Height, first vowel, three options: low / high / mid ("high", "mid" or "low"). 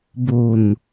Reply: mid